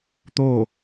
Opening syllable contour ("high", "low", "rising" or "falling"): falling